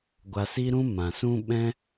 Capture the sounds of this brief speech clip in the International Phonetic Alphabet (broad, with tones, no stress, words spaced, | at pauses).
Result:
ɡʷa˧si˦ɾũ˦ mã˨sũ˦ ɓɛ̃˦